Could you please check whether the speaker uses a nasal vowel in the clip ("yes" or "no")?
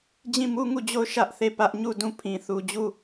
yes